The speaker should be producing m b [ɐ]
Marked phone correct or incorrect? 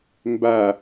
incorrect